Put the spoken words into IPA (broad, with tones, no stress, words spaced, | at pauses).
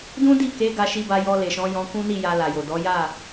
dũ˦di˦˨ ke˨˦ ɡa˧ʃi˧ba˧ jɔ˧le˨ʃɔ̃˨˦ jɔ̃˧kũ˦ni˦˨ ja˧la˨jo˨dɔ˨˦ ja˦˨